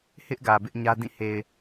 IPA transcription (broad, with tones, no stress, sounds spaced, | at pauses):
h ɪ˦ ʔ ɡ ä˨ b ɪ˦ ʔ ɲ ä˦ d ĩ˦˨ h e˨ ɪ̯